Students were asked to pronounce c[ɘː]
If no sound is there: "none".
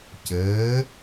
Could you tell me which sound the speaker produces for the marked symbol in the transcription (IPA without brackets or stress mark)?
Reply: ɘː